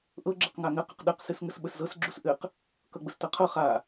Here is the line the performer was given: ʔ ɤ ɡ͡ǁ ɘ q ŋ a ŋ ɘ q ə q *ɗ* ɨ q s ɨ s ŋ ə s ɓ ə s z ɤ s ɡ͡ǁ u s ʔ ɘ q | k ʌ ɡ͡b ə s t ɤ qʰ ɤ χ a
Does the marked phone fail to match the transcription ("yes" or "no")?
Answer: no